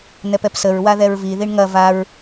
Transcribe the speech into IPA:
n̪ ɛ p ɛ p s ə ɹ w a ð ɛ ɹ v i ð i ɳ ŋ ɐ v a ɹ

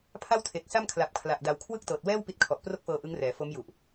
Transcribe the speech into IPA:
pʰ a˥˩ w tʰ e˨˩ k̚ s a˥˩ m kʰ l a˨˩ p̚ kʰ l a˨˩ ʔ d a˨˩ w kʰ w ɯ˥˩ k̚ t ɤː˨˩ t̚ w ɛː˥˩ w p i˦˥ t̚ kʰ ɔ˨˩ ʔ p r o˥˩ k̚ f ɤː˧ ʔ ɯ˦˥ ŋ r ɛː˩˦ f o˦˥ m j u˨˩ ʔ

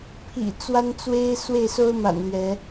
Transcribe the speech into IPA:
pʰ ḭ˨˩ t͡s w a˦ n t͡s w e˦ ɪ̯ s w e˥˨ ɪ̯ s o˦ ʊ̯ m a̰˨˩ n l ɥ ɛ˨˦

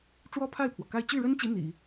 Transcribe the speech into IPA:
ʈ͡ʂ w ɔ˥ pʰ a˥˩ ɪ̯ pʰ w ɔ˩ k a˥˧ ɪ̯ t͡ɕ y˥˩ ɻ ə˥ n t͡ɕ i˧˥ n̪ ḭ˨˩˦

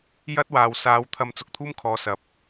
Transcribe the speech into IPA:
j ɐ˥ t̚ w aː˨ w s aː˨˧ w t̪ʰ ɐ˧ m t͡s ʊ˨ k̚ t̪ʰ uː˥ m kʰ ɔː˨˧ s ɐ˨˥ p̚

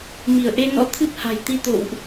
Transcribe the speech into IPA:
m i˧˩ ə̯ ʔ e˧ n ɔ̰˧˥ t̪ʰ ɨ˦˥ p̚ h a̤˨˩ j t̪ i˧ t̪ o̰˧˨ w ʔ

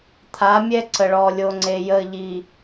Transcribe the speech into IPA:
t̪ʰ a˨˦ mʲ ɛ˦ ǀ ə˨ ɭ ɔ˨ lʲ o˨ ŋ͡ǀ e˨ j ə˨ ʎ i˨

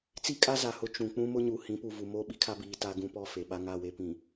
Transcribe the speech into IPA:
t͡s i˦ kʼ a˦ z a˨ h ʊ˦ t͡ʃ ũ˨ k͡p ũ˦ m ʊ˦ ɲ u˨ h ĩ˨˦ p u˨ v u˨ m o˦˨ ɓ i˦ kʰ a˦ b iː˨ t a˦ ɡ ũ˦ p ɔ˦˨ f e˨ ɓ a˦ ŋ a˦˨ w e˦ p ĩ˨

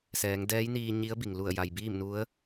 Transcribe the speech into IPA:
s ɛː˩˧ ŋ d ɛː˧˥ j n iː˧ ɲ i˧˥ ə̯ b i˩ ŋ l u˧˩ ə̯ j a˩ j b iː˥˨ m n u˧˥ ə̯

